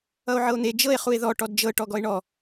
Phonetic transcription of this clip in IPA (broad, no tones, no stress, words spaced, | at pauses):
ʌo̯ʕɤo̯n̪e d͡ʒɤe̯ χue̯ðɔ ʈɔdd͡ʒɤ ʈɔɡɔe̯ɳɔ